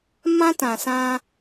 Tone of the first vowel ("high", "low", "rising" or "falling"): high